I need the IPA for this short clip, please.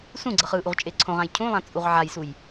sũɡ͡ǀʌ χɯʔuʁ t͡ʃʼeǀʰõʁãj cʰũlˠã t͡sʼuʁʕajsuj

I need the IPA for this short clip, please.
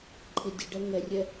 ǃʰɪdʲəɖɛ ŋɛrʲɛ

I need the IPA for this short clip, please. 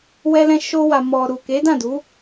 wɛ˧lɛ̃˧ʃo˧ wa˨mɔ˨ɾu˨ ke˨˦dã˦˨du˨˦

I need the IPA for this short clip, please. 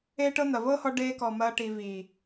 eː˦ʈɤ˦ n̪ɐ˨vɤː˦hɔ˧ ɖeː˧kɔ˨ mɐː˧ ʈiː˨viː˨

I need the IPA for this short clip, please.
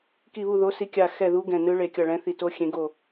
ki˦˨βu˦˨ðo˧˥ si˧˥kʲa˦˨ xɛ˦˨ðu˧˥ ɡɛ̃˦˨nɯ˧˥ɭe˦˨kʲʌ˦˨ ɭɛ̃˧˥θi˦˨ to˧˥ xʲẽ˧˥ ɡo˦˨

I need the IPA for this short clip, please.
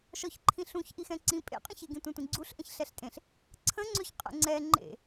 ʃɔçǃʰĩɬũç ʔixɛ̃ǀĩ pʼḛqʼə̃çeɡĩ tʷɛ̃tʷĩɡ͡ǀuɬʔə̃ç ɬɛɬtʼẽɬ | ǀʰə̃ŋ͡ǀøç qʼə̰ŋ͡ǀɛ ŋ͡ǃḛ

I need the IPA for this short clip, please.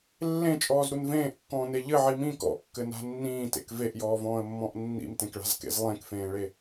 lːẽt͡ʃʼɔːzɾun vẽːʔkːɔ̃ːne ʎɘʕi mĩ kɔ̰kːɘna̤ nːĩːtḛk veʔjɔːvɔ̃ːə̯mːɔ̃ʔ nːḭmtẽkɭa̤zkḛz lˠẽkfẽːɭe

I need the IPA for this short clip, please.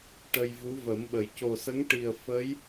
ʈə˧jvu˧˥və˨˩˦mɓə˨˩j co˨˩sə˧˥ŋʈi˨˩ə̯ fə˧˥j

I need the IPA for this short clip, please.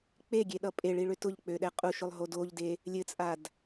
k͡peɡʲeɗʌ pʼeɭiɭø tʊʎk͡pøɗɛ qʼuʃʊlˠɦod oʎde | lʲɘt͡sʼad

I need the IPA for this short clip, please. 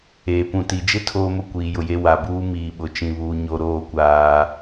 eː˨pũ˨ti˨d͡ʒɪ˦ tʰoː˦mʊ˦ kʷiː˨jʊ˨je˦ wa˨buː˦ miː˨ɓʊ˨˦t͡ʃĩ˨βuː˨ ɲo˨ɾoː˦˨kʷaː˦

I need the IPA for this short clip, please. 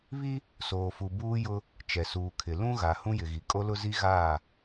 βi˦ | soː˨fu˨buː˦jʊ˦ | t͡ʃɛ˨suː˨kʰɪ˨ lũ˦ɣa˨ hũ˦jɪ˨ɣi˨ kʼo˦lʊ˦zi˦ ɣaː˦˨

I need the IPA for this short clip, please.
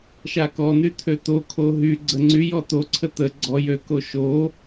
ʃakɔn̪y t̪ʰøt̪okʰo ɦyɡ͡ǀə ŋ͡ǀy jɔt̪oǀʰə t̪ə ɡ͡ǀɔ jøko ʃo

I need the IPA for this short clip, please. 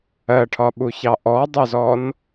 ɜʈʰɒɓuçɑ ʔɔdˤɜzɔn

